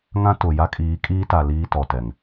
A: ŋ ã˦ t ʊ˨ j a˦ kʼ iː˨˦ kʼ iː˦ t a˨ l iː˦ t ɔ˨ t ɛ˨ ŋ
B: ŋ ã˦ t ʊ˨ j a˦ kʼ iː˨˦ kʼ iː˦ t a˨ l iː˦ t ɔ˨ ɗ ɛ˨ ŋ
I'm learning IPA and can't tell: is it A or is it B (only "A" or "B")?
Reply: A